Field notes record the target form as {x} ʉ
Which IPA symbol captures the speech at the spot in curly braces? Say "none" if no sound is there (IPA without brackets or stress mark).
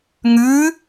ŋ